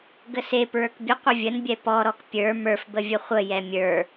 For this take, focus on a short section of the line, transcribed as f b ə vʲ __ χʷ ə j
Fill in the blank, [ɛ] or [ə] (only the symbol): ə